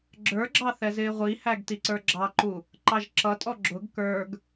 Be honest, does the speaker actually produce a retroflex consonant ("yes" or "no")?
no